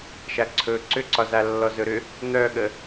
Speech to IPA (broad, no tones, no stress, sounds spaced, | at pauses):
ʃ a ǀʰ ɵ ǀ ʏ ǀ ɒ z a lː ɔ z ɵ ɾ ʏ | n̪ œ ɠ ə